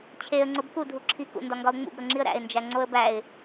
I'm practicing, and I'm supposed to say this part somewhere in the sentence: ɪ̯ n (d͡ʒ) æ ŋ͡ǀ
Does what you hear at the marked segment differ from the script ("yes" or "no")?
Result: no